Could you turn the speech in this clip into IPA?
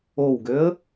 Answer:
o w ɡ ø ə̯

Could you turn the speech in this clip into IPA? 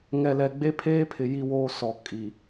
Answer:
ŋ ɛ˨ l ɛ˨ ɡ͡b e˦ pʰ eː˦ pʰ ɪ˨ j i˦ w oː˦ s ɔ˨ kʼ i˨

